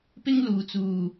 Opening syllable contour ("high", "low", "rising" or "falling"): high